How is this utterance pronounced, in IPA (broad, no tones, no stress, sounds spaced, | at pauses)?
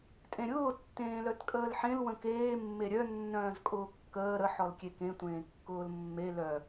tʼ ẽ ɾʲ ʊː tː ẽː l œ t kʼ əː l ħ ẽ l w ə̃ k eː mː e ɾʲ œ nː œ̃ː z kʼ ʊː kː əː ɾ ə ħ ɔ l kʲ e k ẽ tʷ ẽː kː ʊː l mː e l œ